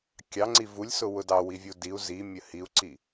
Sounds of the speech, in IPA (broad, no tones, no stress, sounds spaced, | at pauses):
kʲ ɑ ŋ͡ǀ i v u lʲ s ʊ w ʊ d ɑ w i vʲ u d i u̯ z i mʲ ə h i u̯ ǀ i